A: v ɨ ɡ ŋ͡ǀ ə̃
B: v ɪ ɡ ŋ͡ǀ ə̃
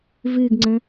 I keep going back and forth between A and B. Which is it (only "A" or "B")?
A